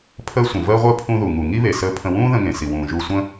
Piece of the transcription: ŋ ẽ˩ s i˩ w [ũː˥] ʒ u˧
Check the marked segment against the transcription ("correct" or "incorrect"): incorrect